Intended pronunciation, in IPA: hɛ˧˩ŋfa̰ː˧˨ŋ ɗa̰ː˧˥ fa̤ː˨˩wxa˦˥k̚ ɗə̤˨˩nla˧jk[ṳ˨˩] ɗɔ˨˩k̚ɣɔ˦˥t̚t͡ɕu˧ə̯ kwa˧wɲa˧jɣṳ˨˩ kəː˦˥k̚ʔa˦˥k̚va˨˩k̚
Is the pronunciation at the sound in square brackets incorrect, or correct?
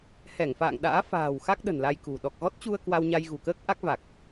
correct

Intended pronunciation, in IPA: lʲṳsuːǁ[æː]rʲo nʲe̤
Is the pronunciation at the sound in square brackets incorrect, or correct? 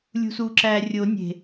correct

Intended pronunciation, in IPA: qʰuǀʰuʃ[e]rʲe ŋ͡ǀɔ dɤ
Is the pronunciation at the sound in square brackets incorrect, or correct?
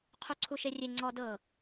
correct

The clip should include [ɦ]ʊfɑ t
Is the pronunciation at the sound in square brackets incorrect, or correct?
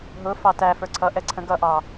correct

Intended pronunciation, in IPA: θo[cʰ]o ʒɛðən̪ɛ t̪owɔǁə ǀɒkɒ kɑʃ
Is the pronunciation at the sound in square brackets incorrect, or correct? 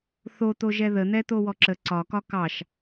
incorrect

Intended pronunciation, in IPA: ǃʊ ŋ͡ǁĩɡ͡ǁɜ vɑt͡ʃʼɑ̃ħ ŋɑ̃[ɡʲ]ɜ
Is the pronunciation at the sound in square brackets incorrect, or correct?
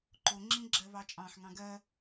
incorrect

